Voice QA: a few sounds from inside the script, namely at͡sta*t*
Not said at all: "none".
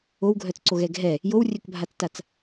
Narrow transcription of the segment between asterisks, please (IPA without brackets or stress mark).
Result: t͡s